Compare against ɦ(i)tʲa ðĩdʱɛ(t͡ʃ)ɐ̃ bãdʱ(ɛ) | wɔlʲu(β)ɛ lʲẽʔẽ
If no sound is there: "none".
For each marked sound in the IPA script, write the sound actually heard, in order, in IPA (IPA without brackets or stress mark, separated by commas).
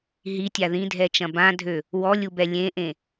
i, t͡ʃ, ø, b